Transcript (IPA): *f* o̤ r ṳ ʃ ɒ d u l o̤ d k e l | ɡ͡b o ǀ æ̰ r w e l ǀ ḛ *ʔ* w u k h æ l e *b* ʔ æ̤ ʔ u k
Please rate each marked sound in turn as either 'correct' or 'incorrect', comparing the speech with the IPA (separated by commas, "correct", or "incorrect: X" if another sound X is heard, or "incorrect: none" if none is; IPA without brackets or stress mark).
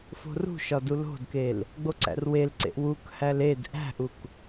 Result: correct, correct, incorrect: d